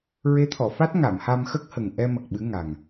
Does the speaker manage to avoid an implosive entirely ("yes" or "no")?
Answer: no